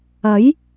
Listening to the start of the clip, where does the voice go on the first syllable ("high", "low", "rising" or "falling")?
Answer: rising